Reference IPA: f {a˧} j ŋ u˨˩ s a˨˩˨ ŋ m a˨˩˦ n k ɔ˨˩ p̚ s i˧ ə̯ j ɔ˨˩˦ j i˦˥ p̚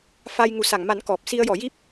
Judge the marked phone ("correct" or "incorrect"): correct